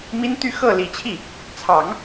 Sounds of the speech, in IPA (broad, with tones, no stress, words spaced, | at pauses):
mi˥nt̪y˥˧ xɤ˥˩li˨˩t͡ɕʰi˥˩ | t͡sʰɑ˨˩˦ŋ